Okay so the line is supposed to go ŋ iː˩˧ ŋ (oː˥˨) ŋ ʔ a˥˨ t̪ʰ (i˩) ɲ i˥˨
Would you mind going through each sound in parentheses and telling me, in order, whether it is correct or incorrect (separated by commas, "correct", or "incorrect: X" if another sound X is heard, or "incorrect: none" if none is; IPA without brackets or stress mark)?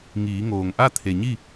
incorrect: oː˩, incorrect: e˩